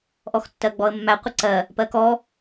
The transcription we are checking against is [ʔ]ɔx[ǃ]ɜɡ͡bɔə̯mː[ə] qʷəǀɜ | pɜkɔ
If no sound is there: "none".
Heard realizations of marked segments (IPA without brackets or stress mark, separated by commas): ʔ, tː, æ